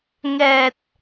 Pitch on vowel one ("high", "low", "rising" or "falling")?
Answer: low